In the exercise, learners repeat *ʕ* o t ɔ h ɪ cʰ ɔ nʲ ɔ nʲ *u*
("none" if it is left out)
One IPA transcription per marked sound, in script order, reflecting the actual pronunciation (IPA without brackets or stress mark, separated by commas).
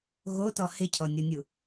ɣ, u